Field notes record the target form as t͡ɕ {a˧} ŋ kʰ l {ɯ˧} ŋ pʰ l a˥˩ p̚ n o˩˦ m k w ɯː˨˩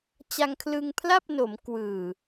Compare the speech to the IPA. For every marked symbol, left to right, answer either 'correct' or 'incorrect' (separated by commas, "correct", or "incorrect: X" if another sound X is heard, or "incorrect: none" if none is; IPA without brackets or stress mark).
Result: correct, correct